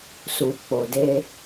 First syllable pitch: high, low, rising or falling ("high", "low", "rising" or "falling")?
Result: low